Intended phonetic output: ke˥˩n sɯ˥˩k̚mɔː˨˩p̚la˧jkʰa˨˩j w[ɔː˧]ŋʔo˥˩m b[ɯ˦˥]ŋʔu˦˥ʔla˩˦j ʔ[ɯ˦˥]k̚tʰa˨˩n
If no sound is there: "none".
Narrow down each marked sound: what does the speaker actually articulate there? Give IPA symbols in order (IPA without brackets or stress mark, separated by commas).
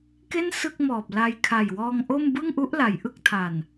ɔː˧, ɯ˥˩, ɯ˦˥